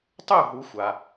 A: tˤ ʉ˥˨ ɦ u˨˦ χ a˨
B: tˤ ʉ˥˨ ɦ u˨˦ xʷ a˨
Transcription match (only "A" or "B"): B